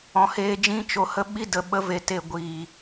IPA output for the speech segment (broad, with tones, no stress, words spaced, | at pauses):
ɔ̃˨heː˧d͡ʒĩ˦ t͡ʃo˧hə˦ɓi˦ də˨ɓə˨˦ve˨ te˧ ɡʷi˨